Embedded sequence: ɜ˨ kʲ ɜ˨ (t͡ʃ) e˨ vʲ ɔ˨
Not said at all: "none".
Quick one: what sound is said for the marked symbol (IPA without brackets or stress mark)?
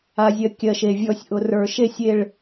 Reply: ʃ